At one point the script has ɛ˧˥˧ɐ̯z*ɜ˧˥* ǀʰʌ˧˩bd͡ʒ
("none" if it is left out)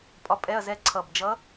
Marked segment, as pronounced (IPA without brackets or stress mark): ɛ˧˥